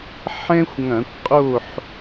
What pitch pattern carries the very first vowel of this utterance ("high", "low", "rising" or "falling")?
high